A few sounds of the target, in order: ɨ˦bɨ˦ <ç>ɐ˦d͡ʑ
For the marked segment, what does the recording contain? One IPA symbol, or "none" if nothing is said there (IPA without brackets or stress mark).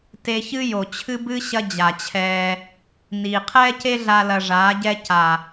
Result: ɕ